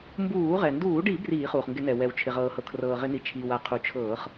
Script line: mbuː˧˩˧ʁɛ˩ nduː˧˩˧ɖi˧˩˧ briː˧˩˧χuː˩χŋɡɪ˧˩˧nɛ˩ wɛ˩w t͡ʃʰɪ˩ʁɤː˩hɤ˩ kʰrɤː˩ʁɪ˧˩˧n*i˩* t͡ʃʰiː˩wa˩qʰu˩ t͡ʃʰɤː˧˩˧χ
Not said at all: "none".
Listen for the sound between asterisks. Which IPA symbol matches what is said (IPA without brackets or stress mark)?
i˩